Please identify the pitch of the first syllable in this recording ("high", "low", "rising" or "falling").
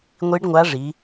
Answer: rising